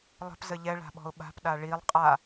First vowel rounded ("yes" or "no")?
no